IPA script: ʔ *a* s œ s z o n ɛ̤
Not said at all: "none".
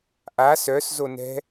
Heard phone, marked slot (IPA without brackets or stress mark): a